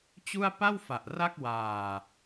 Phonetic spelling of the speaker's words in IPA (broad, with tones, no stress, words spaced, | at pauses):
t͡ɕu˥˩a̯ pa˥˩wfa˨˩ʔ ra˥˩k̚waː˨˩